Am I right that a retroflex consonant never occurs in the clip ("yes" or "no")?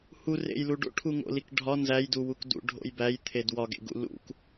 no